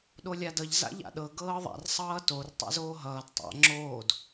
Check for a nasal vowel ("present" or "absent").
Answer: absent